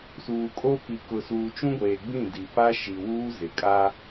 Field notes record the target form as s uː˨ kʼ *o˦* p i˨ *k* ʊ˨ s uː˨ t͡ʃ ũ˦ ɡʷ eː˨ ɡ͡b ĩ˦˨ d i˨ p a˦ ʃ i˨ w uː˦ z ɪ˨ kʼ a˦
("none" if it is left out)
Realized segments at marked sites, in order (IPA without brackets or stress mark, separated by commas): o˦, k